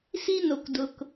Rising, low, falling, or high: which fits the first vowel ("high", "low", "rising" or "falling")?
high